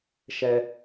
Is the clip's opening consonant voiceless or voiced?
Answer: voiceless